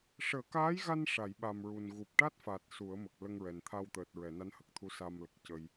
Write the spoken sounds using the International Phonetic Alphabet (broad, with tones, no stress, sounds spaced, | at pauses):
ʂ əː˨˩˦ k aː˧˥ j ɣ a˧ n ʂ a˨˩˨ j ɓ a˨˩ m ɹ u˨˩ n ɣ u˨˩ p̚ ʈ a˦˥ t̚ f a˨˩ t̚ s u˨˩˦ ə̯ m ə˨˩ k̚ l ə˧ ŋ ɹ ɛ˨˩ n t̪ʰ a˧ w t̪ əː˨˩ t̚ ɹ ɛ˨˩˨ n a˧˥ n h ə˨˩ k̚ t̪ʰ u˧˥ s a˧ m l ə˨˩ k̚ c ə˧ j